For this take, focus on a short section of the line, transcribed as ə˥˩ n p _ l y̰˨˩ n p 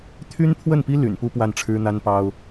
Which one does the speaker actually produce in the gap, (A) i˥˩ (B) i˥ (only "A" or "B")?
B